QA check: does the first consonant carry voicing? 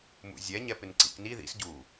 yes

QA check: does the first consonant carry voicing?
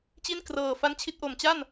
no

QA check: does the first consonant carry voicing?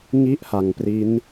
yes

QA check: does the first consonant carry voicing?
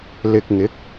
yes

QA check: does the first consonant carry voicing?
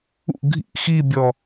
yes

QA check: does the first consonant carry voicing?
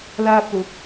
yes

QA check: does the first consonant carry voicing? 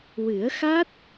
yes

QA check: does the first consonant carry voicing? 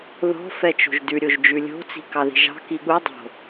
yes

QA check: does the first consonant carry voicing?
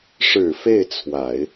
no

